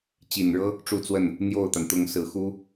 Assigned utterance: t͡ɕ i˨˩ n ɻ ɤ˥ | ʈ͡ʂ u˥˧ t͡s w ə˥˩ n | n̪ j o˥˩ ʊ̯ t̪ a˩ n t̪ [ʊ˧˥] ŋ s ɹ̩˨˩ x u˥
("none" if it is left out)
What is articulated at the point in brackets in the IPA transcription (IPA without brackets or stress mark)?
ʊ˧˥